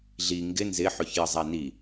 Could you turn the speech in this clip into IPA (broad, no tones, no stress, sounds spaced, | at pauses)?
ɮ i ŋ ɡ ɪ n z ɪ ħ ɵ ç j ə zˤ æ n i